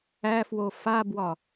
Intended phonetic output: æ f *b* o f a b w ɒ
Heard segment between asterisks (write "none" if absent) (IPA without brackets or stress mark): w